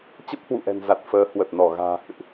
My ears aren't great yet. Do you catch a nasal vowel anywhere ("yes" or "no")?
no